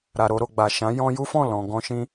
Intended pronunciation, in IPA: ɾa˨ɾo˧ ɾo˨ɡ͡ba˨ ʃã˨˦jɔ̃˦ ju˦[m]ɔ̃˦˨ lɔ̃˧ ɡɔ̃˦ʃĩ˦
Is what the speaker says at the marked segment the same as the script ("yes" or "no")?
no